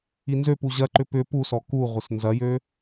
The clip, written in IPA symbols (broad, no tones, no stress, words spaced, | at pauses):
inzøpu ʑɐǃʏ pʏ pusɔ ku ʁʷɪsnzɐjø